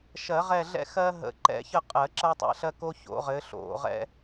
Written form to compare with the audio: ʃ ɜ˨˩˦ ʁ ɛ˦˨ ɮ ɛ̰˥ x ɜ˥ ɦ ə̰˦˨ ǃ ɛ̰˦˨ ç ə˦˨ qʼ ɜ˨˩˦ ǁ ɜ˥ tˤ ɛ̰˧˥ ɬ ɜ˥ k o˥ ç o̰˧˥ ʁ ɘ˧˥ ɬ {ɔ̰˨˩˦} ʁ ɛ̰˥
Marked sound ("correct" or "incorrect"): incorrect